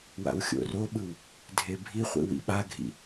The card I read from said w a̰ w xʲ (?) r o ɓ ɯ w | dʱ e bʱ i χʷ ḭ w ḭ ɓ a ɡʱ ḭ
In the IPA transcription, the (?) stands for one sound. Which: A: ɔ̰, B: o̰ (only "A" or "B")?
B